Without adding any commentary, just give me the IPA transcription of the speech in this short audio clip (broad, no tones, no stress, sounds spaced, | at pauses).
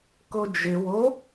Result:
k o d͡ʒ ɪ w o